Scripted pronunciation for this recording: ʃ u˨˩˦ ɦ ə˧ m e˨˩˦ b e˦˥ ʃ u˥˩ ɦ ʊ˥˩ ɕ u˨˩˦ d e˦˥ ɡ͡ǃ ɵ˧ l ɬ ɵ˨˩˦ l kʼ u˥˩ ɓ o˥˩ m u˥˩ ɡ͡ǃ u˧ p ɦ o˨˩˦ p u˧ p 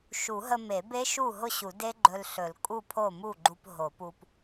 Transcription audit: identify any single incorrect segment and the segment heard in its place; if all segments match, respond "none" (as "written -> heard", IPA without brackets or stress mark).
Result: ɓ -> pʰ